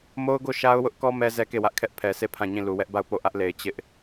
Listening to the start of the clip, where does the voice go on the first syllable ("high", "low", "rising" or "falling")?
high